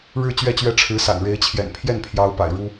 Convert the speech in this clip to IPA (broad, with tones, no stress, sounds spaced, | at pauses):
ɻ ɻ̩˥˧ t͡ɕ ɥ ɛ˥˩ t͡ɕ ɥ ɛ˥ ʈ͡ʂʰ ɻ̩˧˥ s a̰˨˩ n ɻ e˧˥ ɪ̯ t͡ɕʰ j ɛ̰˨˩ n pʰ j ɛ˥˩ n pʰ j ɑ˧˥ ʊ̯ p a̰˨˩ ɪ̯ ɻ u˥